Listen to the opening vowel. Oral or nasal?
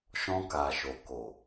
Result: nasal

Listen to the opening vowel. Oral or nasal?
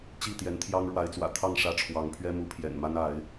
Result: oral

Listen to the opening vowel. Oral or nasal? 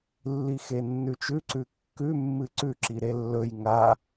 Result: oral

